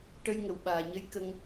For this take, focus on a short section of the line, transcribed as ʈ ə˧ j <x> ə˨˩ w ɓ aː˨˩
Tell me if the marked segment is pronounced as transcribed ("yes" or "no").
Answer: no